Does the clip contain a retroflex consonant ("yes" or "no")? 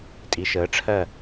yes